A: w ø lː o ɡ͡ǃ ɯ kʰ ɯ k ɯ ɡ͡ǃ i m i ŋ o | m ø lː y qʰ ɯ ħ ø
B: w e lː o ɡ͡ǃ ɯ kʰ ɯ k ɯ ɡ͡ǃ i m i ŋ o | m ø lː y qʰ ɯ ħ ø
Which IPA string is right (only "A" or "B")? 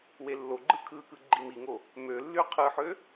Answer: B